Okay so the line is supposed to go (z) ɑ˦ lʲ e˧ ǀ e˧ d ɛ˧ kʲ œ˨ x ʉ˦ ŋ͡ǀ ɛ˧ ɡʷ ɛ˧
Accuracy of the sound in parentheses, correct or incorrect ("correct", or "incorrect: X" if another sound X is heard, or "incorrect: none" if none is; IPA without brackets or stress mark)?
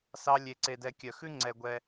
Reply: incorrect: s